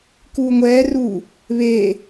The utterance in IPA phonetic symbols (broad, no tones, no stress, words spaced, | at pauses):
kuːŋʷɛːruː | βeː